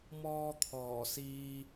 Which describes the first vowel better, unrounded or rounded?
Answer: rounded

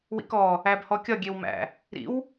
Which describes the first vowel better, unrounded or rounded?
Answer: unrounded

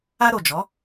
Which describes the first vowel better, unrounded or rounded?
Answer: unrounded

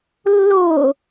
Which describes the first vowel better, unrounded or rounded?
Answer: rounded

